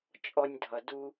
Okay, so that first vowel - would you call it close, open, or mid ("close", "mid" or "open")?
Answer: mid